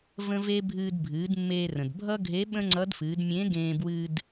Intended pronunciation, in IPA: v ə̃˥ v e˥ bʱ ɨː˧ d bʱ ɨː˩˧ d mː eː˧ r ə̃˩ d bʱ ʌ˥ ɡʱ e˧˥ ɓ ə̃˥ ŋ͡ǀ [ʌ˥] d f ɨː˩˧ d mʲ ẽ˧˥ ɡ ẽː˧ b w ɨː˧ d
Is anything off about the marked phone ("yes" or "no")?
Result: yes